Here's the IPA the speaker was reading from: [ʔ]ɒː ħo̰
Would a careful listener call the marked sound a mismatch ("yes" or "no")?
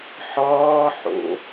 yes